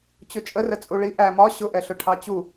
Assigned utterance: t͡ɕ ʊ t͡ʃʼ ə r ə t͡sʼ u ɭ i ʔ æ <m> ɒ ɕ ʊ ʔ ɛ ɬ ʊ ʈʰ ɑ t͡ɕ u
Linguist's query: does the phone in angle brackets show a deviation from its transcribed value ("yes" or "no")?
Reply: no